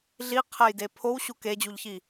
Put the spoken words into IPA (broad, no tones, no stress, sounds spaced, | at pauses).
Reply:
ɮ i qʰ æ j d e pʰ o w ɕ u k e d͡ʑ u ʎ ç i